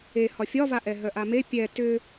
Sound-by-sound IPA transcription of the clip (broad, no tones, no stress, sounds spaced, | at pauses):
e h ɒ fʲ ɒ v a ʔ ɛ ɦ œ ʔ a m e pʲ ɛ t ʏ